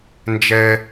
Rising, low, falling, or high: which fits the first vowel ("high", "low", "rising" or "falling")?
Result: high